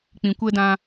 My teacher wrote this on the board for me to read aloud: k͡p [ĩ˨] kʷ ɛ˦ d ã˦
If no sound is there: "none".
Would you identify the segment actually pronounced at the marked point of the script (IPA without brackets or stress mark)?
ĩ˨